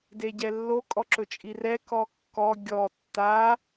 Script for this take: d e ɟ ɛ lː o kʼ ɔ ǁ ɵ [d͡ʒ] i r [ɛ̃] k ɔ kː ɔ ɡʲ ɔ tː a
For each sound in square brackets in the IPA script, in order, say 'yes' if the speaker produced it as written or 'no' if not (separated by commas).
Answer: no, no